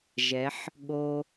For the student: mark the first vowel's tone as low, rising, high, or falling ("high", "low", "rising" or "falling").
rising